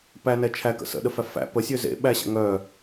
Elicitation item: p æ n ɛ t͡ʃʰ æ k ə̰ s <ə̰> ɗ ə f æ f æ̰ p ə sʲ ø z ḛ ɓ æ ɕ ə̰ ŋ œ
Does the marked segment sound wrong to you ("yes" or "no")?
no